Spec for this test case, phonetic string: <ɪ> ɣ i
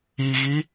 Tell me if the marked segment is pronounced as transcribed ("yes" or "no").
no